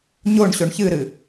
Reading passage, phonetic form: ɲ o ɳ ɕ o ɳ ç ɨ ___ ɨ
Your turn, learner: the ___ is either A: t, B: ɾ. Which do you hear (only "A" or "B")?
B